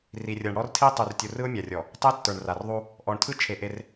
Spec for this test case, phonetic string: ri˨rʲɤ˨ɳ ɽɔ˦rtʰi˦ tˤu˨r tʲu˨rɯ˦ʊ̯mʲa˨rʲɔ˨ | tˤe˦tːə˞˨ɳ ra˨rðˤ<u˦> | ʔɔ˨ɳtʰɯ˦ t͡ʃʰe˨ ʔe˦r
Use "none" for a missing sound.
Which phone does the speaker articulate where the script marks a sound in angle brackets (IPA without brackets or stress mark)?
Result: u˦